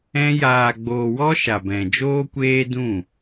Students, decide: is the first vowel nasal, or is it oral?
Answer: nasal